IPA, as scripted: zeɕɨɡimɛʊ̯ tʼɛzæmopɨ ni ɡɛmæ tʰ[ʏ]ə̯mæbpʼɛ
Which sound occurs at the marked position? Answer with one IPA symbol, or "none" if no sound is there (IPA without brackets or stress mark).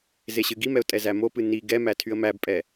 y